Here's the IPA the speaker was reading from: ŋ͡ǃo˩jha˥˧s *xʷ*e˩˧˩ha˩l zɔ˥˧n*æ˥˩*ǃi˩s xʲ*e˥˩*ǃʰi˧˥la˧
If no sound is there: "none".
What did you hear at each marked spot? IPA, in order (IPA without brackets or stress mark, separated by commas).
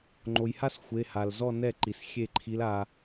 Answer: xʷ, ɛ˥˩, e˥˩